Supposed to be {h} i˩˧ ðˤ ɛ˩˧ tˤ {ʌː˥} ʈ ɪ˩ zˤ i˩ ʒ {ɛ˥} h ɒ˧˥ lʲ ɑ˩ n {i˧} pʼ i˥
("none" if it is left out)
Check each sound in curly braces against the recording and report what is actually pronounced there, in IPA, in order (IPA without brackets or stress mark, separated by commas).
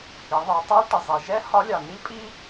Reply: h, ʌː˥, ɛ˥, i˥